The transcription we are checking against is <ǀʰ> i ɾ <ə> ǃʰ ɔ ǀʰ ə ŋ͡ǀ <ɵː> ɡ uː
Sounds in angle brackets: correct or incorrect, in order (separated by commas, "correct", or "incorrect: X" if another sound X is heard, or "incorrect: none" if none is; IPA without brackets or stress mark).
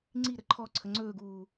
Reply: incorrect: ŋ͡ǀ, correct, correct